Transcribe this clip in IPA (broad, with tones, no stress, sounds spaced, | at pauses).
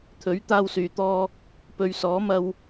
t̪ʰ ɵ˨˥ ɥ t̪ aː˧ w s yː˨ t̪ ɔː˧ | p ɵ˧ ɥ s ɔː˨˥ m ɐ˧ w